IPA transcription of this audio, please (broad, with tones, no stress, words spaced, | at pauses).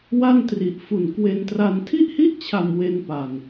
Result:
wa˥˩ntri˨˩ʔfu˨˩n kwe˧ntra˧n tʰi˥˩ʔhi˥˩ʔt͡ɕʰa˨˩m we˧npa˨˩n